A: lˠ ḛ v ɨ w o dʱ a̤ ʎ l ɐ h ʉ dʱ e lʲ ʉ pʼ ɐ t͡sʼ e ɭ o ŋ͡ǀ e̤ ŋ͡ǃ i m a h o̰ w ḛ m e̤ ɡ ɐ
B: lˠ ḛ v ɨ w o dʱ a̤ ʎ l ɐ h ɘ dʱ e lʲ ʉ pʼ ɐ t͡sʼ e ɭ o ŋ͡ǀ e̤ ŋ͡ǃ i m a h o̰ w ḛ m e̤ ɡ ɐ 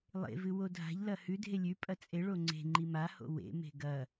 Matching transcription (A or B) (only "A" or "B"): A